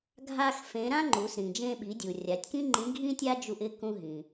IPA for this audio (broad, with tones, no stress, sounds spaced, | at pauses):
ɡʱ a˥ x f ẽ˧˥ ɾ ã˥ ŋ͡ǃ u˩˧ s ɾ ĩ˩ d͡ʒ ẽ˧ ɓ i˩˧ dʲ u˩ rʲ a˩˧ tʲ k ĩ˥ ŋ͡ǃ ĩ˧˥ ɡʱ ĩ˥ tʲ a˥ d͡ʒ u˧ ʔ ɪ˧˥ k ũ˧ ɦ ĩ˩